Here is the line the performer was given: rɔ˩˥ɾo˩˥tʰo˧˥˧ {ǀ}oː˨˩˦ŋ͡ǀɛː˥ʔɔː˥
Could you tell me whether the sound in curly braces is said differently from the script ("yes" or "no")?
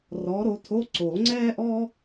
no